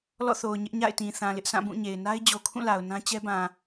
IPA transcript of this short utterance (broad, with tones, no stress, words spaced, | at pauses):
lɔ̰˦˨θo˨ʊ̯ ɲɪ˦ʔɲa̰˦˨ɪ̯tĩ˨ θã˨lɪ˦ʔsʰã˦˨ bũ˦˨ɲe˨ɪ̯ na˦ɪ̯d͡ʑo˨kʰũ˦˨ la˨ʊ̯nã˦ t͡ɕɛ˦bã˨